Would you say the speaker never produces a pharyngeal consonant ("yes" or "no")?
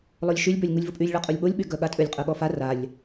yes